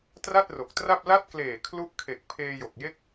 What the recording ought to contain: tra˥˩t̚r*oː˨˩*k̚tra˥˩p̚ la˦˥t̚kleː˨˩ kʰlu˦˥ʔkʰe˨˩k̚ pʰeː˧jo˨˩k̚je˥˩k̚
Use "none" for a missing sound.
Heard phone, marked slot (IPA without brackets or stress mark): o˨˩